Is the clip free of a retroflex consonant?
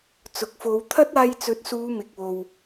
yes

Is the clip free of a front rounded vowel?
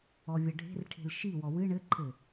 yes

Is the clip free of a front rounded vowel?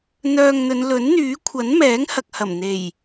no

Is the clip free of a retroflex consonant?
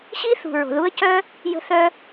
yes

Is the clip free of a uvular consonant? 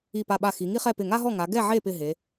no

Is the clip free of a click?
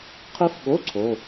no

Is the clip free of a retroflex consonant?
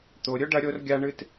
no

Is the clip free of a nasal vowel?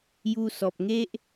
yes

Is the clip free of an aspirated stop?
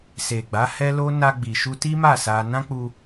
yes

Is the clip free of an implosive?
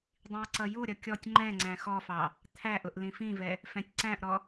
yes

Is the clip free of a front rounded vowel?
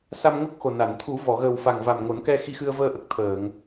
yes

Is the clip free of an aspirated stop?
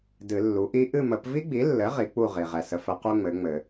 yes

